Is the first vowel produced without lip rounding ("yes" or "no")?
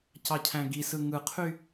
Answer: yes